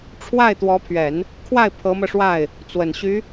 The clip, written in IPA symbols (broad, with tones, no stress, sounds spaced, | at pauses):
ʈ͡ʂʰ w a˥˩ ɪ̯ t̪ w ɔ˧˥ pʰ ɥ ɛ˨˩˦ n | kʰ w a˥˩ ɪ̯ pʰ ɤ˧˥ m ɤ˧ ʂ w a˥˩ ɪ̯ | t͡s w ə˨˩ n ɕ y˧˥